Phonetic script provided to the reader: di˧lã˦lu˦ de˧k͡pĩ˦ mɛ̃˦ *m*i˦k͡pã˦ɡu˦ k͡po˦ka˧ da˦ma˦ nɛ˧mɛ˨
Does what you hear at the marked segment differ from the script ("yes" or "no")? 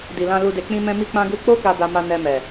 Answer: no